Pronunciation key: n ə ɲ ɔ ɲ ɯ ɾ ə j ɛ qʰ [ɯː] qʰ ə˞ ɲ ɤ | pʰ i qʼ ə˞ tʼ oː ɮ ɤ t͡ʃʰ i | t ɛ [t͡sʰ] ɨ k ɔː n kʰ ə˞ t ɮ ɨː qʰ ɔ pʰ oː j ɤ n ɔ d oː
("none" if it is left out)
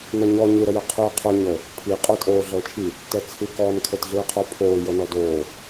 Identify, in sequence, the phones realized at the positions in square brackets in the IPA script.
ɯː, t͡sʰ

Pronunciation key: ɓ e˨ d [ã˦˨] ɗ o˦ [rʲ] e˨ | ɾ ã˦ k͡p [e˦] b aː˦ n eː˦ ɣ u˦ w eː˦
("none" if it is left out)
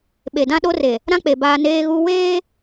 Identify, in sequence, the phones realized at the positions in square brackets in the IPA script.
ã˦, r, e˨

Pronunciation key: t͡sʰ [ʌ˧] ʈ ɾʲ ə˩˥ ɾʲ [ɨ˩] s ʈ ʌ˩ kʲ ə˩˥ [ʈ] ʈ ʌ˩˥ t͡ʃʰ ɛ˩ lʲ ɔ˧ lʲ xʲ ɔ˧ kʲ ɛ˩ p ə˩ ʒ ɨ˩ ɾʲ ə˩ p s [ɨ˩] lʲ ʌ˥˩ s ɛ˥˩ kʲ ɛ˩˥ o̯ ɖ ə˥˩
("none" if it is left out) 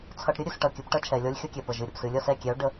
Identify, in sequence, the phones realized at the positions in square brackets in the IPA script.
ʌ˧, ɨ˥˩, p, ɨ˩

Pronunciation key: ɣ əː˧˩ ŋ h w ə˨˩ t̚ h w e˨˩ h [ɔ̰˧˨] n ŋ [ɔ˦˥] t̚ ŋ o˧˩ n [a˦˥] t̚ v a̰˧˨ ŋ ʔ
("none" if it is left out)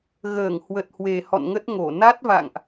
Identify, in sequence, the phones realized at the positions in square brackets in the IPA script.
ɔ̰˧˨, ə˦˥, a˦˥

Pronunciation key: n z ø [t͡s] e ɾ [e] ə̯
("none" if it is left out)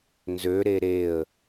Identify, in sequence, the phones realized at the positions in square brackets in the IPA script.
ɾ, e

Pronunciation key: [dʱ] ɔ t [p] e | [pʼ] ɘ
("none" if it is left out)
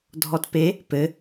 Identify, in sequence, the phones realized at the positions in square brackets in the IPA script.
dʱ, p, p

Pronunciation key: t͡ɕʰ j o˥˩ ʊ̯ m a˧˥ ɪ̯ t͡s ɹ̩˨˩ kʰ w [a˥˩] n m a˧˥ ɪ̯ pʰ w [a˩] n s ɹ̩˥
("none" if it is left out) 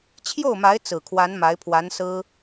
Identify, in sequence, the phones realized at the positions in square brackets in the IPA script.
a˧˥, a˧˥

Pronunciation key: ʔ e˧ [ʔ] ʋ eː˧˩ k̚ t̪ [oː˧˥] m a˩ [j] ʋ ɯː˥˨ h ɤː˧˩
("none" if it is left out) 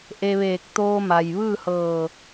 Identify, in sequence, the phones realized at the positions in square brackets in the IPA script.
none, oː˧, j

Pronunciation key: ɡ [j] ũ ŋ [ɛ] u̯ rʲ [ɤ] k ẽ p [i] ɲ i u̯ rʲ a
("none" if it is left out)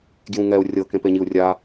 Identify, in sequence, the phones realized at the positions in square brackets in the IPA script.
j, ɛ, ɤ, e

